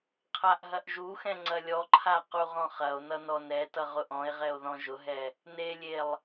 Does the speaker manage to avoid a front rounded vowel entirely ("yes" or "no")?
yes